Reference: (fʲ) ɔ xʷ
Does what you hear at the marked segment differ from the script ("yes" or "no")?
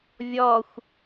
yes